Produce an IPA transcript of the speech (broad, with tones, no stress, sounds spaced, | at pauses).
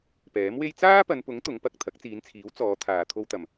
p ɛː˨˥ m w e˥ j t͡s aː˥ p ɐ˨˧ n p ʊ˨˥ ŋ t̪ ʊ˨˥ ŋ p ɐ˨ k̚ t̪ʰ ɐ˨˥ k̚ t͡s iː˨˧ n t͡sʰ iː˨˥ w t͡s ɔː˨˧ t̪ʰ aː˨ t̪ʰ o˧ w t̪ ɐ˨ m